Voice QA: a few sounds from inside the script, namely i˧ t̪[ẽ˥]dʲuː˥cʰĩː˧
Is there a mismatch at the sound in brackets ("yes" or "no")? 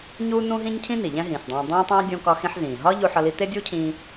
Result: yes